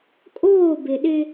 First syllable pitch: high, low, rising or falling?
falling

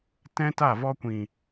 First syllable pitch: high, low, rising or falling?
high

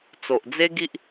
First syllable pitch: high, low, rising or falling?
low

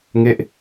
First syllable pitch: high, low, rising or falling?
falling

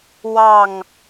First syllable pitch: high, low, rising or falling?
falling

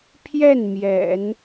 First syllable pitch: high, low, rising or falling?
falling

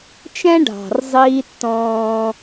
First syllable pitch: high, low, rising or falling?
high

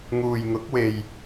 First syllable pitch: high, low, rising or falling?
low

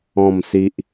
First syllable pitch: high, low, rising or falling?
falling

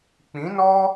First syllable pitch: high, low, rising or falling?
rising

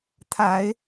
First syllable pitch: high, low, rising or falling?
low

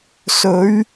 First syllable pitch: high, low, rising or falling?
rising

